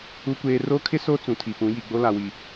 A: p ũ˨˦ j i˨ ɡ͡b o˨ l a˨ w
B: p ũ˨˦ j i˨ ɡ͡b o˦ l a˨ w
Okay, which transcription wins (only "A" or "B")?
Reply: B